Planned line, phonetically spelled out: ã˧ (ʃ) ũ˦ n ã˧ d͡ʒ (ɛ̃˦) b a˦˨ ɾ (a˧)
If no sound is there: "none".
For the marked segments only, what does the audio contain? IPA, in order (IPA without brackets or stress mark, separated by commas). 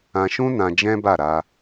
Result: ʃ, ɛ̃˦, a˧